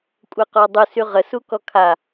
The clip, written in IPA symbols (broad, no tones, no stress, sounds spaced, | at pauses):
kʷʼ ə e̯ q ɔ dˤ u s y ʁ ə s u k ɔ kʰ a